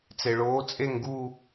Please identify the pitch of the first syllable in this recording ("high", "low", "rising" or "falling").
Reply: low